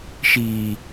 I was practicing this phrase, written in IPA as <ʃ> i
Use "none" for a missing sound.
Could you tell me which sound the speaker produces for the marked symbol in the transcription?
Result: ʃ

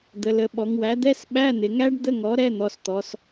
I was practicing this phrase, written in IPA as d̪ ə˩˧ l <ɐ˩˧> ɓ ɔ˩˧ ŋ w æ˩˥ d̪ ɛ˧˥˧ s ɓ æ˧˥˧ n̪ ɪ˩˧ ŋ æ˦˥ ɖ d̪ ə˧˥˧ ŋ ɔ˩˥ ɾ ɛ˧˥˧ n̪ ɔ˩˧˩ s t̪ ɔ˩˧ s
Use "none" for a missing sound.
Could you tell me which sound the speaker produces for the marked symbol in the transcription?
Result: ə˩˧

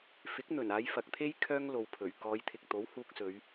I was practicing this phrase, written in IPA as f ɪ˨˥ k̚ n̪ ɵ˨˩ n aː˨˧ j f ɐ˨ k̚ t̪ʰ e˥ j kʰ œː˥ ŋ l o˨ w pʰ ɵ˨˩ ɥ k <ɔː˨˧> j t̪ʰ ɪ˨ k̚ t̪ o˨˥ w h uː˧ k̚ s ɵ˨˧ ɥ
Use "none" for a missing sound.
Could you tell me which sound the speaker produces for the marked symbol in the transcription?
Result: ɔː˨˧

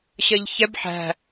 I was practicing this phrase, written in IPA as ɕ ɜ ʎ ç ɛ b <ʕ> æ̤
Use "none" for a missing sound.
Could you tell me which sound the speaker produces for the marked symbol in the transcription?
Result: ħ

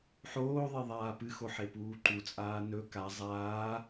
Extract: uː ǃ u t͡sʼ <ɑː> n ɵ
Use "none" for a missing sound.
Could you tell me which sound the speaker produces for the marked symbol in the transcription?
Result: aː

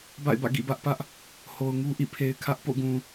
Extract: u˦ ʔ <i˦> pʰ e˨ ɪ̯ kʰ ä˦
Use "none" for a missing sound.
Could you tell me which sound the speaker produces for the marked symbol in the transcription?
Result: ḭ˦˨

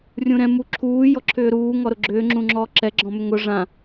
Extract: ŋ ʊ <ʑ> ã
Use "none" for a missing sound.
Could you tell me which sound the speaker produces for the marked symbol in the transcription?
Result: ʐ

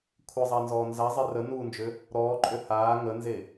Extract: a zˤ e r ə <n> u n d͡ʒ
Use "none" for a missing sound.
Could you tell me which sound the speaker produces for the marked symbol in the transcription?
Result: n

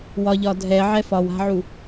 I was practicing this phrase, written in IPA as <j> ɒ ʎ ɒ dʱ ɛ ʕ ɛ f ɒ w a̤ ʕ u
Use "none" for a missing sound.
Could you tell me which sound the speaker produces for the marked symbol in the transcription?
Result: w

